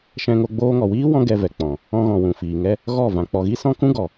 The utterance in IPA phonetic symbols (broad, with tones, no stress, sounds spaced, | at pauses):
ʃ ɛ̃˧ ŋ o˧ ɡ͡b oː˧ ŋ ɔ˨ w iː˦ w ɔ̃˦ ɡ ɛ˧ v ɛ˨ k͡p ɔ̃˨ | ɔ̃˧ ɣ ɔ̃˨ w ũ˨ f iː˨ ŋ ɛ˦ | ɣ ɔ˦˨ v ã˨ k͡p ɔ˨ ɣ i˦ s ɔ̃˦ k ũ˦ ɡ ɔ˨